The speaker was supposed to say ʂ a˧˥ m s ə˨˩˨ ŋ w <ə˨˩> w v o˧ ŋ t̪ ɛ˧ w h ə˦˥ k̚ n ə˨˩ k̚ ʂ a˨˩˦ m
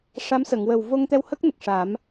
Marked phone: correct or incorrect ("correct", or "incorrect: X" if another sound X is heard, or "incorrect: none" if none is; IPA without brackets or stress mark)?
correct